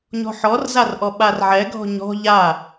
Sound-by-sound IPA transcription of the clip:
ɲɔ̤ħɔrzarʔɔ ɓarʕɛɡʱɔ̤ ɲɔ̤ ʎa

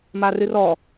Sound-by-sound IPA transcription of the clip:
marɨrɔ

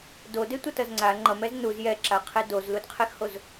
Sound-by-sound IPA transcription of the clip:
dodetʷʌtʌz ŋ͡ǀa ŋ͡ǃʌmɛz nuz jɛǁaqʰe dozludqʰexhoz

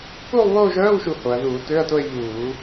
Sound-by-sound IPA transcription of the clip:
kuː˥˧lˠβoː˥˧ʒœː˧˥˧wʃu˧˩˧ ho˩˧ɐ̯ðuː˧˩˧tø˧˥˧ɐ̯to˥˧ɐ̯ ʎuː˧˩˧

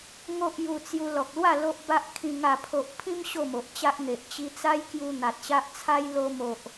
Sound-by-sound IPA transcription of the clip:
ŋo˦ʔju˧t͡sju˧ lɔ˨k̚lwa˥˧ lo˦ʔba˦ʔkʰĩ˧ ŋa˥˧pʰo˦ʔ pʰĩ˦m ɕo˥˧mo˨ʔ t͡ɕa˦ʔ n̪e˨ʔ t͡ɕi˧t͡sa˦j kju˧ n̪a˨t̚ɕa˦ʔt͡sʰa˦j lo˧mo˨ʔ

